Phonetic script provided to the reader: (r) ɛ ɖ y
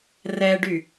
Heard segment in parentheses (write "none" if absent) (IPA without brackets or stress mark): r